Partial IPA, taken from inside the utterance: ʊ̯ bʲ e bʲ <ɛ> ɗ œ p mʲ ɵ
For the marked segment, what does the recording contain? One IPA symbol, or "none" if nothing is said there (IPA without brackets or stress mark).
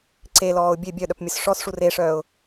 œ